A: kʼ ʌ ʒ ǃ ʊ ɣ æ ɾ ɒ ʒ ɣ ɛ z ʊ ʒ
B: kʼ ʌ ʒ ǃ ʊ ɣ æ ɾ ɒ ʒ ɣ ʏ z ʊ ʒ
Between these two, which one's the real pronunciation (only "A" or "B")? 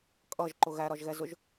A